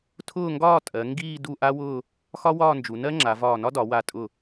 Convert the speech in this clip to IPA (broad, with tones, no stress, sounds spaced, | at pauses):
tʰ ʊː˥˧ ŋ ɡ ɒː˥˧ tʼ ɜ˩˧ ŋ ɡ iː˥˧ d u˥˧ ʔ a˥ w ʊː˥˧ | x ɒ˥ w ɒː˥˧ n d͡ʒ u˩˧ n ɜ˥ ŋ͡ǁ a˩˧ v ɒː˧˩ n ɒ˥ d ɒ˩˧ w a˧˩ tʼ ʊ˧˩